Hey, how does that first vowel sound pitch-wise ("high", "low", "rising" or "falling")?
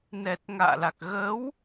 low